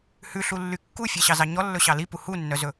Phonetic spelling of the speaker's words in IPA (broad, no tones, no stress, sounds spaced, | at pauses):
h ʉ ɬ u lː y kː u fʲ ɛ ɕ ɑ z ɑ ɲ ɔ lː ɵ ɕ ɑ l i p u h u nː œ z ɵ